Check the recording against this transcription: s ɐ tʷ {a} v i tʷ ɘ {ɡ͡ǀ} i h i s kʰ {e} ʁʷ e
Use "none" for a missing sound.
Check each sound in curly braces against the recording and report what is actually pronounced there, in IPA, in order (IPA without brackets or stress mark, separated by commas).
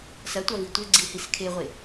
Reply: a, ɡ͡ǀ, e